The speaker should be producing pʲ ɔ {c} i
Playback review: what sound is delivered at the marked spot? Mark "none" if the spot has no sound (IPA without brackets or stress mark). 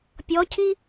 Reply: cʰ